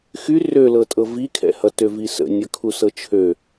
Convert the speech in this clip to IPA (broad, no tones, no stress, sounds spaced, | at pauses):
x y r ø l ɤ tʼ ɤ v i kʰ ɛ̰ h ʌ t ø v i s ə̰ nʲ ʌ kʰ u s ɤ t͡ʃʰ ø